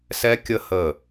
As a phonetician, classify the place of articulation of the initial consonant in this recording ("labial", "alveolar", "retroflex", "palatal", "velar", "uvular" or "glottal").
alveolar